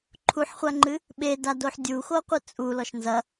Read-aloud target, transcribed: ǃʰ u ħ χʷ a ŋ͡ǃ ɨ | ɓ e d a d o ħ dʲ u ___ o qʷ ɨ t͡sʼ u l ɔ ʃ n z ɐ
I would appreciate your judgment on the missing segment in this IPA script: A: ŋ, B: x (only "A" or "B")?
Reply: B